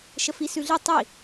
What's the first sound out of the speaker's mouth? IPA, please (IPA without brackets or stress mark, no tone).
ʃ